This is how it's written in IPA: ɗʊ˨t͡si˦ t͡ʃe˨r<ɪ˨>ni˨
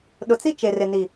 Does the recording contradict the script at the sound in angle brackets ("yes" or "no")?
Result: no